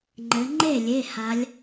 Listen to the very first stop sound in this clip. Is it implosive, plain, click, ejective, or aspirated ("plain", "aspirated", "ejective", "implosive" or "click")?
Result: click